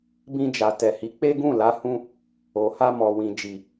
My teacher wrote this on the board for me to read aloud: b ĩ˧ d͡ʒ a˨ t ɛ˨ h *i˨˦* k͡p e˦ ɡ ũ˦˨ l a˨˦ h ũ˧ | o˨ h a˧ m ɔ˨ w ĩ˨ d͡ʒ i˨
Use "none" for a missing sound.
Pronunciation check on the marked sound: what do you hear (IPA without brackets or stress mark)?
i˨˦